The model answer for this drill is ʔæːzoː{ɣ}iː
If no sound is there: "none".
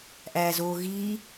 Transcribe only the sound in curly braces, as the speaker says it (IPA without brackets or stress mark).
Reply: ɣ